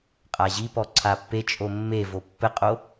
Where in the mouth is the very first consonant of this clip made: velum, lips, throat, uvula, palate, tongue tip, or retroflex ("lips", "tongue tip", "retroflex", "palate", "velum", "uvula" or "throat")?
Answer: uvula